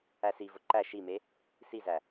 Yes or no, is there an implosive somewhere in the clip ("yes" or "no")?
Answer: no